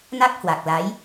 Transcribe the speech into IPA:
n a˦˥ k̚ h w a˨˩ k̚ l a˨˦ j

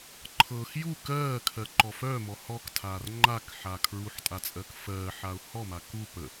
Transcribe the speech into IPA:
ǃʰ ɤ x j u k ɜː kʰ ɜ ǃ ɔ f œ m ɔ h ɔ k tʰ aː r ŋ͡ǃ a k ħ a kʰ ɹ u ħ tʼ a t͡sʼ ɜ k f ɜː ħ a ʊ̯ h ɔ m a k u p ə

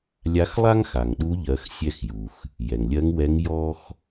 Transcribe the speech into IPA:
lʲ a˧˥ x lˠ a˥ ŋ x a˩ ŋ ɗ u˧˥ ʎ ɜ˩˧ x sʲ ɛ˧ x j u˩ x | j ɛ˩ ŋ lʲ ɜ˧˥ ŋ w ɛ˧˥ ŋ j ɔ˥ x

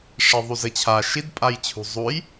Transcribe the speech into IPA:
ʂ i ðˤ u z ɘ t͡ɕʰ a ʃ i d pʼ a j t͡ɕʰ ṳ zˤ u j

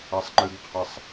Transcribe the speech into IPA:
a sˤ ŋ͡ǃ ɨ ɡ qʰ a sˤ

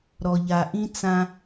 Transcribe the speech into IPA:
ɾ ɔ˨ ʎ a˨ ʔ ĩ˦ t͡s ã˦

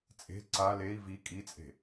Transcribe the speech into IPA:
t͡sʼ e̤ ǀ a l e i̯ v i kʼ i t͡sʼ e̤

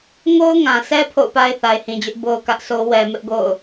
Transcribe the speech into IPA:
ŋ o˦ ʊ̯ ŋ ã˨ s ɛ˦ pʰ o̰˦˨ ʊ̯ p a˦ ɪ̯ θ a˨ ɪ̯ h ĩ˨ d͡ʑ ʊ˦ ʔ b o˦ ʊ̯ k ä˦ ʔ sʰ o˦ w ɛ˨ m ɪ˦ ʔ ɡ o̰˦˨ ʊ̯

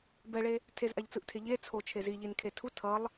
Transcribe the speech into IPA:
b ɛ ɭ e | tʰ e z ʔ a ʎ t͡s ɯ ʔ tʰ e ʎ e t͡sʰ o t͡ʃʰ e z i ʎ i n kʰ e tʰ u tʰ ʌ lˠ

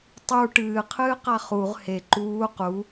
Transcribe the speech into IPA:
tˤ u ʈ ɨː qʰ ɨː q a χ u ʁ h e ǃ uː q u

